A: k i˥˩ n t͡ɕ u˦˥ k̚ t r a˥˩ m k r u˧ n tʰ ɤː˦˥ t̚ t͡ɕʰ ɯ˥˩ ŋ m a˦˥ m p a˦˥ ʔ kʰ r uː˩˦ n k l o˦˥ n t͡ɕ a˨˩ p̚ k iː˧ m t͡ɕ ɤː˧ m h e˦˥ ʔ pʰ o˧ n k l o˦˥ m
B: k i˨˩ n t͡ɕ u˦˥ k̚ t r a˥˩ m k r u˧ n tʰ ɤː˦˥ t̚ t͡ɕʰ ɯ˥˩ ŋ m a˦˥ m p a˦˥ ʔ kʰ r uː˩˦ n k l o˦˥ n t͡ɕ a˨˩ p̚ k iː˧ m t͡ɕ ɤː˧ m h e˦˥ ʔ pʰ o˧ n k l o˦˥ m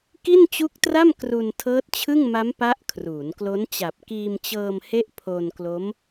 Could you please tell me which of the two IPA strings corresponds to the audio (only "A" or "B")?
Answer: A